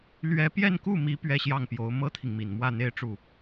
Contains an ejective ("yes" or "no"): no